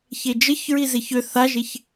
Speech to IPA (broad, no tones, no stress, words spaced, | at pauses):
çed͡ʒəçɹi zeçø θaʒeç